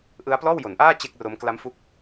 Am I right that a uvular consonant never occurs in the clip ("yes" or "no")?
yes